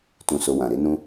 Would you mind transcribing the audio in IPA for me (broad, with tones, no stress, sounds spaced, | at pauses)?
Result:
t ũ˧ s o˧ w ã˨ ɾ e˨˦ n ũ˦